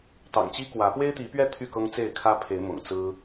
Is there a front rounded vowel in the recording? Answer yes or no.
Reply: yes